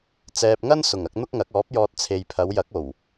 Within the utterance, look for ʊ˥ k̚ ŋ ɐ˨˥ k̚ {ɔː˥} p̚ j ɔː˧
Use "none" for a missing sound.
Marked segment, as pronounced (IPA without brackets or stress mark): ɔː˨˥